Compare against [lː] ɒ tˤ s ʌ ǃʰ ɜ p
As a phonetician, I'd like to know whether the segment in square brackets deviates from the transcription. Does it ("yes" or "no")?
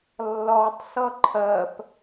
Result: no